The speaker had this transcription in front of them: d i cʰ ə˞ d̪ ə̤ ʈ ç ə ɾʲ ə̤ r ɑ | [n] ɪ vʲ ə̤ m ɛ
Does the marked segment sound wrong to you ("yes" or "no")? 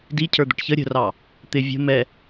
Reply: yes